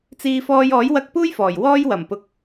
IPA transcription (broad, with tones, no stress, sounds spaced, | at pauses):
t͡s iː˧ f ɔː˧ j ɔː˨˥ j w ɐ˧ k̚ p uː˥ j f ɔː˨˩ j w ɔː˧ j w ɐ˨˩ m p ʊ˨˥ k̚